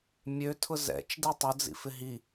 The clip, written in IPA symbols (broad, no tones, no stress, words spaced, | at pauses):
mʲøtʰʊ zɛ̰t͡ʃdi tˤʊd͡zḭfɪ ɦi